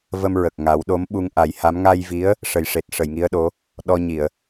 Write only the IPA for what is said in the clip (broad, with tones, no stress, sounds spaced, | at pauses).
v ə˧ m ɹ ə˨˩ k̚ ŋ a˨˩˦ w ɗ o˧˥ m ɓ u˧ ŋ ʔ a˨˩˦ j h a˧˥ m ŋ a˧ j v i˧˥ ə̯ | ʂ ə˨˩ j ʂ e˨˩ t̚ ʂ ə˨˩˨ j ŋ i˧˥ ə̯ ɗ o˧˥ | ɗ ɔ˧ ɲ i˨˩˨ ə̯